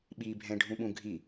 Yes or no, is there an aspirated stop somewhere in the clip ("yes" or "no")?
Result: no